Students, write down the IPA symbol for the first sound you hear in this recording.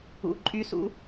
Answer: ṵ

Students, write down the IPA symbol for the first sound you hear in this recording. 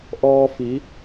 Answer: ʔ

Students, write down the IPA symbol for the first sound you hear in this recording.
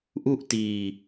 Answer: ʔ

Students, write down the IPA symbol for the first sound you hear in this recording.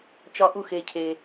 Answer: t͡ʃ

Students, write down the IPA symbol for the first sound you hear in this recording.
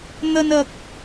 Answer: n̪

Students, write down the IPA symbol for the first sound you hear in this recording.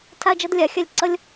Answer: tʰ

